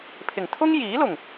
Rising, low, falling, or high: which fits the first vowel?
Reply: low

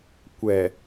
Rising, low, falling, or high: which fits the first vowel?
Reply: low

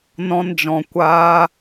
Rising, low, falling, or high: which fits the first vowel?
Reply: high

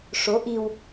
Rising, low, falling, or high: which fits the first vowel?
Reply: rising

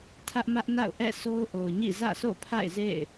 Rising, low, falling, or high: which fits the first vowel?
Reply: high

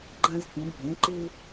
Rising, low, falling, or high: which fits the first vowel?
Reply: high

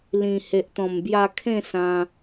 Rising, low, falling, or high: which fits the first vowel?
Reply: low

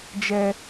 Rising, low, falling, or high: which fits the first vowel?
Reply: high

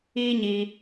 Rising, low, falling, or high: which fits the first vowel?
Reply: high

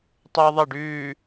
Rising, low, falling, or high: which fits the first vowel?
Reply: high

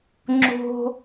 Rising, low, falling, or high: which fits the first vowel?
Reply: low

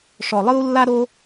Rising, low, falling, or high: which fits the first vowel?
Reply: low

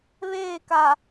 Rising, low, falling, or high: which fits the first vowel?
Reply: falling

